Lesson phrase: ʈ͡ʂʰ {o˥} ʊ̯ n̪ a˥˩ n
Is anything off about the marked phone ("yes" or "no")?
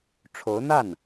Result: yes